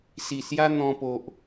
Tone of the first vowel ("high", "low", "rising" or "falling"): low